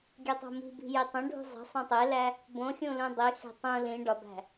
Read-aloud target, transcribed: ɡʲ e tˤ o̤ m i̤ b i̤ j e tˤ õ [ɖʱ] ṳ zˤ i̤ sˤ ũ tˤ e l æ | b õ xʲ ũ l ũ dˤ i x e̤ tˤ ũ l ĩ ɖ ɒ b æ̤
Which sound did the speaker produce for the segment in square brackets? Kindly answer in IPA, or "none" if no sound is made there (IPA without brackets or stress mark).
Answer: ɖʱ